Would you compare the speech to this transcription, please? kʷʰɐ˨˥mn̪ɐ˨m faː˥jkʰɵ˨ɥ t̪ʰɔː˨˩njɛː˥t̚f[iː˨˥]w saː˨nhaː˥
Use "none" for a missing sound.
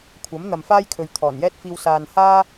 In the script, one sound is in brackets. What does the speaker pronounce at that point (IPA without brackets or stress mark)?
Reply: iː˧